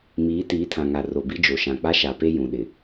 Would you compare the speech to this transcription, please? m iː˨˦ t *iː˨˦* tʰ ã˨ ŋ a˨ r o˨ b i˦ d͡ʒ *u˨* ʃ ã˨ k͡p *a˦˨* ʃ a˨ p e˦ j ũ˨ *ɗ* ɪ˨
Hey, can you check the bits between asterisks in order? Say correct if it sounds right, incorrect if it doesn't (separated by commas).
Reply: correct, incorrect, incorrect, correct